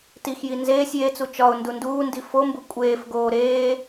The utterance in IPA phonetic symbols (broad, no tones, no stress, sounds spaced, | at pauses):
t i x j i n z eː sʲ j e t͡s u t͡ʃ ɒ ʊ̯ n d u n d uː n d i f o m b u kʷʼ eː f ɡ oː ɾ eː